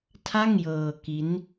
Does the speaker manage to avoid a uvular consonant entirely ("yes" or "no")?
yes